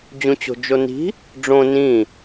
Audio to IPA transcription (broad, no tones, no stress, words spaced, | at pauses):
d͡ʑũt͡ɕo̤d͡ʒoni̤ | ɖ͡ʐõ nĩ